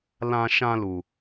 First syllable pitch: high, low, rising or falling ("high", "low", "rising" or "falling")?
high